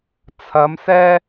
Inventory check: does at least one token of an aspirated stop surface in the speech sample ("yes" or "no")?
yes